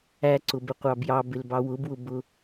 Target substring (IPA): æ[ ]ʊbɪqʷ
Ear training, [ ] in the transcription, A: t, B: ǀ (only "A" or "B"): B